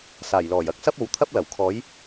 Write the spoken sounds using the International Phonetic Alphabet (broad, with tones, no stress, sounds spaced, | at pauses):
s aː˨˩ j l ɔː˨˩ j ɐ˥ k̚ s ɐ˥ p̚ o˨˥ w t̪ʰ ɐ˥ p̚ l ɐ˨˩ w kʰ ɔː˨˥ j